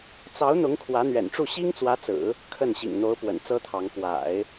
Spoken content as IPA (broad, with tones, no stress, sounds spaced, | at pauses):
t͡s ɑ˧˥ ʊ̯ n̪ ʊ˧˥ ŋ kʰ w ä˧˥ n̪ ɥ ɛ̰˨˩ n ʈ͡ʂ u˥˩ ɕ i˥ ŋ t͡s w ä˧˥ t͡s ɹ̩˨˩˦ | kʰ ə˥˩ n ɕ ḭ˨˩ ŋ n̪ o˧˥ ʊ̯ p w ə̰˨˩ n t͡s ɤ˥ t̪ʰ ɑ˧˥ ŋ p w a̰˨˩˦ ɪ̯